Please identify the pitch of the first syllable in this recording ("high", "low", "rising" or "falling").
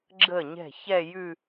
falling